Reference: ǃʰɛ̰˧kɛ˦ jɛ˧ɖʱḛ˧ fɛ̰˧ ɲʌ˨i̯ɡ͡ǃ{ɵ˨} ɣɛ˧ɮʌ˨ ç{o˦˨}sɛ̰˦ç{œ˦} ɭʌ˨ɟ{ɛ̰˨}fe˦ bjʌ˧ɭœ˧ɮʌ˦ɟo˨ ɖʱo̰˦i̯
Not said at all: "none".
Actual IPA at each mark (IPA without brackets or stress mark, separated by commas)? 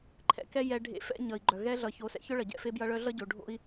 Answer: œ˨, o˨˦, œ˦, ɛ̰˦˨